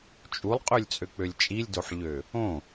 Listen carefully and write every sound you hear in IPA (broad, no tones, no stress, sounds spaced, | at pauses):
t͡ʃʼ u lˠ qʼ ø lʲ t͡sʼ ø k͡p ø lʲ t͡ʃʼ i lʲ d o ħ ʎ ø | õ